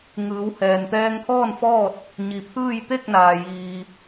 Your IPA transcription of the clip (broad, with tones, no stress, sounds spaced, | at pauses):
ŋ ɯː˩˧ w h ɛː˩ n t̪ ɛː˧ ŋ kʰ ɔː˥˨ n f ɔː˥˨ t̚ | ɲ i˩ pʰ ɯː˥˨ j t̪ e˥˨ k̚ n aː˩ j iː˩